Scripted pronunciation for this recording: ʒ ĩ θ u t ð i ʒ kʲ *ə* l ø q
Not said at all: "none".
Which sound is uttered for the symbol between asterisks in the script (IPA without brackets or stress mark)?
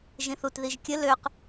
ə